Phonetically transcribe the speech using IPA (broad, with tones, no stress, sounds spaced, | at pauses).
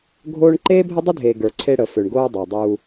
ɡʱ oː˦ ɳ ǃ eː˦ bʱ ə˦ dˤ ə˦ dʱ e˨ ɡ ə˞˨ ǀʰ e˦ ɽ ə˨ f ø˨ ɳ ɡ oː˦ dˤ o˨ dˤ uː˦